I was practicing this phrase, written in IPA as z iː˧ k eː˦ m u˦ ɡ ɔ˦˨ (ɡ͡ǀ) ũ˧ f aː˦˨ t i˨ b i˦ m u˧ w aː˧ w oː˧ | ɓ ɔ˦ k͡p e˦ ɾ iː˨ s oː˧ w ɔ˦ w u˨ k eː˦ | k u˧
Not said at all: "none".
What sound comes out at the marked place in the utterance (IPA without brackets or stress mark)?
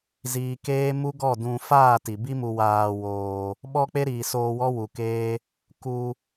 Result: d